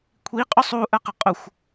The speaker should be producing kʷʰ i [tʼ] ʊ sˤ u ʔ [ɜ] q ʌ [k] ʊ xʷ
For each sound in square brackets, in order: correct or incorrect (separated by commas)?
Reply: incorrect, correct, incorrect